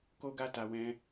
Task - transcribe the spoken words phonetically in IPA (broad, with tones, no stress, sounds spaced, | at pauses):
k o˧ ɡ a˧ t a˨ w ɛ̃˧